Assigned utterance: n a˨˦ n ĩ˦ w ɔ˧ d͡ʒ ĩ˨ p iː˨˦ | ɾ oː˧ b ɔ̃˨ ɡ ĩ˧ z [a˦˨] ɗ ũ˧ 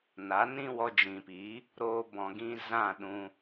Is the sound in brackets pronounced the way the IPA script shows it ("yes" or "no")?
no